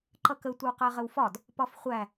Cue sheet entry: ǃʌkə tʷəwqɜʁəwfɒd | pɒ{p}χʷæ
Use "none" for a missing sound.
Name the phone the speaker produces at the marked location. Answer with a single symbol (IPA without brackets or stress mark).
f